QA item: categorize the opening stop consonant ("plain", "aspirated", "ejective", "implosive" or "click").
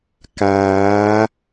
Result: plain